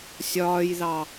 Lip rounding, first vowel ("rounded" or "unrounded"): rounded